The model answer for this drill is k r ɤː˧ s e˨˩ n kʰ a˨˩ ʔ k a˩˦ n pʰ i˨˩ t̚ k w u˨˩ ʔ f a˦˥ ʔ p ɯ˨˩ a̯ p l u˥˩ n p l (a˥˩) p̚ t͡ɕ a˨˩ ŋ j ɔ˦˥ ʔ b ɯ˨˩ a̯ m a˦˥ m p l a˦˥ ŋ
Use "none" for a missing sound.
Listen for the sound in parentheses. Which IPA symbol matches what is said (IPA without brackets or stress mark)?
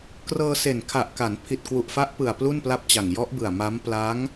a˥˩